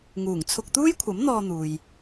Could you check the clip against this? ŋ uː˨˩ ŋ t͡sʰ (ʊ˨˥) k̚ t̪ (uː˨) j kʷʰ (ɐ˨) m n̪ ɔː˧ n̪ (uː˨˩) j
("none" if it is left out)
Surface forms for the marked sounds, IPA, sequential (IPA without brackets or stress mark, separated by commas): ʊ˧, uː˥, ɐ˨˥, uː˨